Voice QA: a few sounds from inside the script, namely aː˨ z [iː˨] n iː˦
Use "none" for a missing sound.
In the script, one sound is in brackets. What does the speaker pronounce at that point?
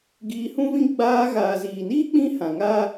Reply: iː˨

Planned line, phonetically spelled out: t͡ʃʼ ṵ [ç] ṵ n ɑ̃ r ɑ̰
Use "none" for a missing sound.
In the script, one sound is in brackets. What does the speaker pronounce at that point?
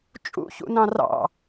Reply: ç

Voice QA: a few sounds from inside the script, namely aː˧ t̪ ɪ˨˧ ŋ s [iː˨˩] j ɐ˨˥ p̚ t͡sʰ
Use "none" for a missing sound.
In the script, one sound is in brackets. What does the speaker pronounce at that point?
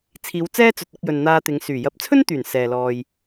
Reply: yː˨˩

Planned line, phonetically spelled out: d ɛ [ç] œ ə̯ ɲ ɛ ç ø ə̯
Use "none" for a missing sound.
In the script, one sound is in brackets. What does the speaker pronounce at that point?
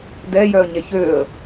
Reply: j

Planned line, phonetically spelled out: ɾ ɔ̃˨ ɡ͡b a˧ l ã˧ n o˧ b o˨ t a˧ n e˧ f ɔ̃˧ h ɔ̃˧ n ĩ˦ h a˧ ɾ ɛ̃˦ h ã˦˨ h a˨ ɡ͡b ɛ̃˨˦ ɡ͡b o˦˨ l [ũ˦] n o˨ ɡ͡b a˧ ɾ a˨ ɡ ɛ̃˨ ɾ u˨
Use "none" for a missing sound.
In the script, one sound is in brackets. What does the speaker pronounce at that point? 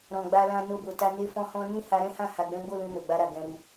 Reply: ũ˧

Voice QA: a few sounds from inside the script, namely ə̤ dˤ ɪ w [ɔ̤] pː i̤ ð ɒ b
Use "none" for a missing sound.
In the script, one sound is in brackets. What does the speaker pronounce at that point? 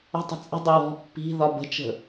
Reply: ɔ̤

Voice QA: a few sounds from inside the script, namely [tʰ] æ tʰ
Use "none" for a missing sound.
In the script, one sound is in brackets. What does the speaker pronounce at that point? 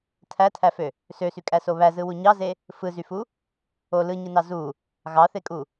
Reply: tʰ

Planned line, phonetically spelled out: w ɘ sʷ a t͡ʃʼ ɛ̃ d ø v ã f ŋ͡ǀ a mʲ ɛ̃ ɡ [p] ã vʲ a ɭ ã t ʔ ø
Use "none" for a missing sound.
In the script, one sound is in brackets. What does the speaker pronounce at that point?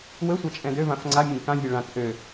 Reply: k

